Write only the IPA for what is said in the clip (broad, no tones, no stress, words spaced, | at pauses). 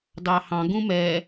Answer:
dɑhɑ̃ ɡũmɛ